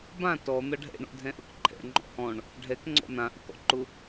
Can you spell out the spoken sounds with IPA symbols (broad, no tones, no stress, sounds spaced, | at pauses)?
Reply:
b ã t ɔ n̪ ʌ ɖʱ ɛ̰ ɳ ɔ̰ dʱ ɛ̃ ʔ ʌ k ǃʰ ɛ̰ ŋ͡ǃ ɔ̰ h ɔ̃ ɳ | ɖʱ ɛ k ŋ͡ǀ ɔ̰ n̪ ã ʔ ʊ k ɔ̰ ǃ ʊ